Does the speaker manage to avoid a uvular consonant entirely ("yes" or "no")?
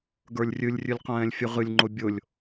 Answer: no